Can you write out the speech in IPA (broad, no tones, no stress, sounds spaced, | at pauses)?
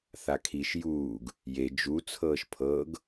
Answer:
θ a kʰ i ʃ j uː ɡ | j e d͡ʒ u t͡sʰ ɤː ʃ pʰ ɤː ɡ